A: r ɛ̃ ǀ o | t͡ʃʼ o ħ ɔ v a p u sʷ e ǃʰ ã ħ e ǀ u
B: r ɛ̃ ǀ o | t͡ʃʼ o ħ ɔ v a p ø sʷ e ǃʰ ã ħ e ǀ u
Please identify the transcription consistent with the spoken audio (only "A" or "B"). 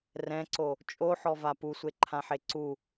A